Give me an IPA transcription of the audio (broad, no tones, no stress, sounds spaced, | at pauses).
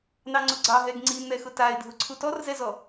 n ɑ ŋ͡ǀ ʊ ɡ͡ǀ ɑ ɦ ɛ ɡ ŋ͡ǀ i n̪ ɛ x ʊ t a ɪ̯ dʱ ʊ ǀʰ u t ɔ r z ɛ z ɔ